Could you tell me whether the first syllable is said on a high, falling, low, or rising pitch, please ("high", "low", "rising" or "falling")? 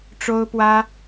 high